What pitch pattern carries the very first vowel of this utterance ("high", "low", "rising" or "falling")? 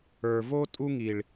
low